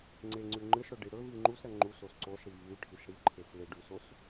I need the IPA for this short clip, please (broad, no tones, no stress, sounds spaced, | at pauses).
ŋ͡ǀ e ŋ͡ǀ ʉ ŋ͡ǃ ɨ s ɽ ɵ ɖ i ɽ ɵ v i ŋ͡ǃ u s ɾ ɐ ŋ͡ǃ u s o s ǀ o s ɽ i v ʉ ʈʰ i s ɽ i ǃʰ e s l e ɖ ʉ s o s